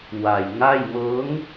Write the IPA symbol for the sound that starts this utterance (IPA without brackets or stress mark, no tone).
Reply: w